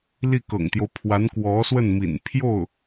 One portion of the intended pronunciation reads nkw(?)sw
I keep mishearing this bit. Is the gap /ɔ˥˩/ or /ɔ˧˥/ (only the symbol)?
ɔ˧˥